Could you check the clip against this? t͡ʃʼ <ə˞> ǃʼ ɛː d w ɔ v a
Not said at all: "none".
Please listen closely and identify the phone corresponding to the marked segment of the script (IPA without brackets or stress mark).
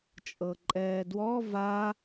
ɤ